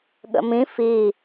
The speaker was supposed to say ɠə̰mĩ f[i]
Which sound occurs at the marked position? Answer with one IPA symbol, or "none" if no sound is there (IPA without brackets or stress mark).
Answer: i